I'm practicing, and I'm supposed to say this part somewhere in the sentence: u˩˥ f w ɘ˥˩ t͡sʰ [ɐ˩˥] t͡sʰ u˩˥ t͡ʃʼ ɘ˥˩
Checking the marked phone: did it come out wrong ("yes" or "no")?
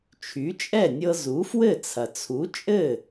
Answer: yes